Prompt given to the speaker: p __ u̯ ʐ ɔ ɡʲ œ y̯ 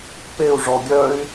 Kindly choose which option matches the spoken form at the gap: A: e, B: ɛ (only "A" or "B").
A